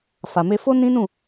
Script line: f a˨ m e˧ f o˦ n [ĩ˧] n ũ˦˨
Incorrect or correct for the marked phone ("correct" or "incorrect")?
incorrect